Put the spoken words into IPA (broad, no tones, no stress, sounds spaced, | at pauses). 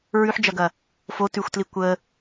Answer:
ɹ ʉ ħ d͡ʒ ɐ ɡ ɐ | f o t ʉ xʷ t l i kʷ ə